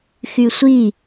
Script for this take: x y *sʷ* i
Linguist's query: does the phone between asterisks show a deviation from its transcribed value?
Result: no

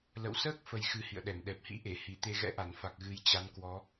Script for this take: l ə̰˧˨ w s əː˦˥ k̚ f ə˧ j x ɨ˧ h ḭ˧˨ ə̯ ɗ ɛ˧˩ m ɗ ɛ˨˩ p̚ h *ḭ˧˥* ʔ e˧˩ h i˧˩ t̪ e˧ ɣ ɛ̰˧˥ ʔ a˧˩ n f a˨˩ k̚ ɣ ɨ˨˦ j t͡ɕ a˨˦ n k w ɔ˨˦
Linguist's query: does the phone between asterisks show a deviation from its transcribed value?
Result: no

